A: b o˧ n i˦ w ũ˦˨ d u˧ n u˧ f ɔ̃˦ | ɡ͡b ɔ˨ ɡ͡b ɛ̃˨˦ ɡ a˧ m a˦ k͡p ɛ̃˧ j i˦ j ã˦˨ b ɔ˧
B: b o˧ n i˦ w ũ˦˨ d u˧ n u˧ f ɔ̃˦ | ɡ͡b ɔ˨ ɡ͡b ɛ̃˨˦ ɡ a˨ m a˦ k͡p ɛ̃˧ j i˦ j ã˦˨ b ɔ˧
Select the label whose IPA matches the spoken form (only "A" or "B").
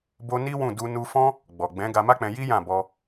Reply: A